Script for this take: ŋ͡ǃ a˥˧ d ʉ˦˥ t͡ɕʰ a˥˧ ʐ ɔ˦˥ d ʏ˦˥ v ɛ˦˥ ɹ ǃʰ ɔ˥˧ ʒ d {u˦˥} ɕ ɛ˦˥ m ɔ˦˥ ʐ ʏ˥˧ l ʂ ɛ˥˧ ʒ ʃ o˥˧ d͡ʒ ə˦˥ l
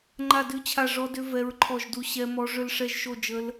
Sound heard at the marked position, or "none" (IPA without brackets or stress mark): u˦˥